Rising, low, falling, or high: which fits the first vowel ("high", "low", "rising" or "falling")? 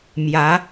rising